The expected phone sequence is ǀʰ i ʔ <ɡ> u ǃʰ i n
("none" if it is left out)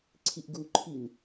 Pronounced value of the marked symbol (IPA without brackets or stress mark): ɡ